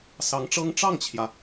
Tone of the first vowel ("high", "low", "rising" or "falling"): rising